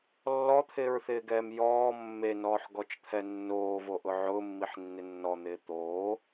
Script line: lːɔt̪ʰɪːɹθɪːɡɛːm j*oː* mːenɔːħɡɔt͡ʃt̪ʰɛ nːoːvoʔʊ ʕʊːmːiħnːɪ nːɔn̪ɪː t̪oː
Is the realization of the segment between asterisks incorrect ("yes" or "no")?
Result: yes